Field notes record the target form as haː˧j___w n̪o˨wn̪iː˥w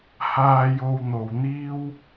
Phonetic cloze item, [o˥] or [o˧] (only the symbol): o˧